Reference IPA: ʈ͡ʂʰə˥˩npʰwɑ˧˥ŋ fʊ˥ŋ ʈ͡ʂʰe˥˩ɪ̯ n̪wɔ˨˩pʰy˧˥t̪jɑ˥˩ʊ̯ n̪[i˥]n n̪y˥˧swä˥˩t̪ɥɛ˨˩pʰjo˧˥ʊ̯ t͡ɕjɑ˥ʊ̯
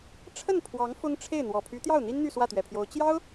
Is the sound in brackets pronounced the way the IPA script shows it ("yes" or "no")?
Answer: yes